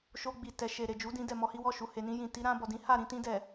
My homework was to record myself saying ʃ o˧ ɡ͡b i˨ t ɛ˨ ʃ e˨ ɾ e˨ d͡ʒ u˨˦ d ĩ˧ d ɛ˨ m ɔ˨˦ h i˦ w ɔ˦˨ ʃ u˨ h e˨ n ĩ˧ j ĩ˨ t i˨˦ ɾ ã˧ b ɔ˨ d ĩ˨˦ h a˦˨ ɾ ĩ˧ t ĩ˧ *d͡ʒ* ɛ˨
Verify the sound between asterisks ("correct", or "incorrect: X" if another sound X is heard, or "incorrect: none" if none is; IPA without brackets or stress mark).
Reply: incorrect: d